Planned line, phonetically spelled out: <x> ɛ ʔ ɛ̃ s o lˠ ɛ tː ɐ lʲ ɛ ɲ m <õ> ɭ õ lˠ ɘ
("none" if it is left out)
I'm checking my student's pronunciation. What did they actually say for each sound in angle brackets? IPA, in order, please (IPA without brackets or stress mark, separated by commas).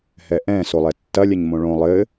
h, õ